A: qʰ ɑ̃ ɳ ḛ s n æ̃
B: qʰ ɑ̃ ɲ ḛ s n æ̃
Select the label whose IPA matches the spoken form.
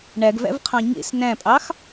B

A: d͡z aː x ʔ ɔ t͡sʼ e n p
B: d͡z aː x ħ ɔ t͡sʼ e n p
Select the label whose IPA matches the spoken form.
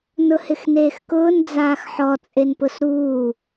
B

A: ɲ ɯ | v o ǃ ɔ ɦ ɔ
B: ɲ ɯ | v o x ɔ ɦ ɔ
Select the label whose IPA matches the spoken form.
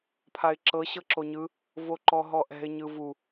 A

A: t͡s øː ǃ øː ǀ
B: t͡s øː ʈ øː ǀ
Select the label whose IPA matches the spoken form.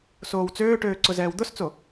B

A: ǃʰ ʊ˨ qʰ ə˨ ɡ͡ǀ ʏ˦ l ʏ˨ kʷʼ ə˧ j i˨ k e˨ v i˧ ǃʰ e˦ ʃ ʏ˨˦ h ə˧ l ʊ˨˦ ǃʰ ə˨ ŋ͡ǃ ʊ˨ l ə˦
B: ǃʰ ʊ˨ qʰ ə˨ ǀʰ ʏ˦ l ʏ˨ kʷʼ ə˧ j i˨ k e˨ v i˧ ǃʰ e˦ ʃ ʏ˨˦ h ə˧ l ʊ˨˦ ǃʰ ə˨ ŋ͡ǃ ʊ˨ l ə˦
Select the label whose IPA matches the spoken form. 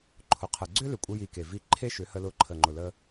A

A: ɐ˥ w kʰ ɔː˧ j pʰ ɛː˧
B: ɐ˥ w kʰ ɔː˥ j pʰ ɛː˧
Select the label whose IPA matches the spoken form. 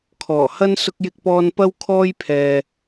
B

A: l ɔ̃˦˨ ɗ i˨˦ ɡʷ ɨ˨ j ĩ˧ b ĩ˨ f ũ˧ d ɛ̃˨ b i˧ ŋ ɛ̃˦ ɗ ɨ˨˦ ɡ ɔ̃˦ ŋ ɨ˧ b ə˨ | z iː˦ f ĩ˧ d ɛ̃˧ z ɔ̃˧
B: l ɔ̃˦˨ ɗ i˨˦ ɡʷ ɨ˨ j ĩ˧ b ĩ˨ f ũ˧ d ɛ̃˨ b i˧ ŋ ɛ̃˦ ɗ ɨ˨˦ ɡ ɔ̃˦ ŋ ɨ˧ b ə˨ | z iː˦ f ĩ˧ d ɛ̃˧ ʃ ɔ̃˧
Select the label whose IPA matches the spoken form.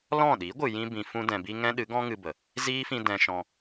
B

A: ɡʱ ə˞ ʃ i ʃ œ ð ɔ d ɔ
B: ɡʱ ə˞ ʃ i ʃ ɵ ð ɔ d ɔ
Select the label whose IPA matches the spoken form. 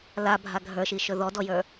B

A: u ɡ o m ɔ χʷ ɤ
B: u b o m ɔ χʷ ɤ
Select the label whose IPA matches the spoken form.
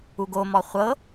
A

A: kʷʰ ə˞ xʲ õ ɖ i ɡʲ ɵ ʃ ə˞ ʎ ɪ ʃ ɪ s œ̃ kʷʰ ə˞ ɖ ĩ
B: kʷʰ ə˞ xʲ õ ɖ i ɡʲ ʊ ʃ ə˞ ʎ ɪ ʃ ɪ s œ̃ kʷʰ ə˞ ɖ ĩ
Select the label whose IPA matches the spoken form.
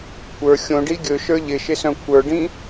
A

